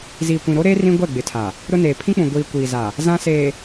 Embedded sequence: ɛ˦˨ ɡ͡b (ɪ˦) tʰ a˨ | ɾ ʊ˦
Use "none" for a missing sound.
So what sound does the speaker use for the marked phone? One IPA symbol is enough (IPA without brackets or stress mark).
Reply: ɪ˨